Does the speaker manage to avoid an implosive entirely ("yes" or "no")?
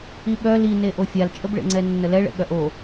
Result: no